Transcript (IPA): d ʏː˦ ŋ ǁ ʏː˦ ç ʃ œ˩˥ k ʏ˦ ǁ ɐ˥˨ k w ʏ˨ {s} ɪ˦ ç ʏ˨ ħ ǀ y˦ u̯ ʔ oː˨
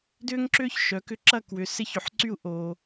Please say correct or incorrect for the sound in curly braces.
correct